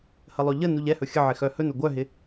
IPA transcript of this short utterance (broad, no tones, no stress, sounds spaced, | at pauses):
h ə lˠ ɵ ʎ ə n u ʎ ɛ h ɵ xʲ ə ʕ ɪ x œ h ɵ n ɵ ɡʷ œ ɦ ɪ